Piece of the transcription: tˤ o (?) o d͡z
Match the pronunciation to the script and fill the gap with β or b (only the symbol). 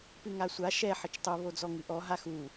β